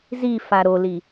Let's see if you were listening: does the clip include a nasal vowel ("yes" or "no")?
no